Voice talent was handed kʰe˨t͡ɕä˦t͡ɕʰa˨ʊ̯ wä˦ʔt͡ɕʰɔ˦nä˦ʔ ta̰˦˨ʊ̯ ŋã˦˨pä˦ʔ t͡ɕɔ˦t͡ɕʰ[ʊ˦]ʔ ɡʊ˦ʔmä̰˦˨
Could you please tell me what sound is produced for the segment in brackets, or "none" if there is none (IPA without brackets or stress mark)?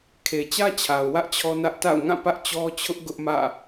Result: ʊ˦